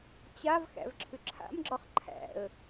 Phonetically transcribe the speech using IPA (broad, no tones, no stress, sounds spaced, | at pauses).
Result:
t͡ɕ a v x æ̰ v ǁʰ ʏ ǁʰ a̰ m ɡ͡ǁ ɒ χ ǃʰ æ̰ ə̯